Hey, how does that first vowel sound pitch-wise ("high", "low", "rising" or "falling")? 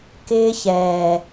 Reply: high